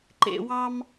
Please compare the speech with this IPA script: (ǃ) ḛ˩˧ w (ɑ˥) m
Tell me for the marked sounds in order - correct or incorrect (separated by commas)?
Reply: correct, correct